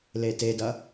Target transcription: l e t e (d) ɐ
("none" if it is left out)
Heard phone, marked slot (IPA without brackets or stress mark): d